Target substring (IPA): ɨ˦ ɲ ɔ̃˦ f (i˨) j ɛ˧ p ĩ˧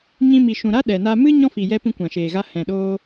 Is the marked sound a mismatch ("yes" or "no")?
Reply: no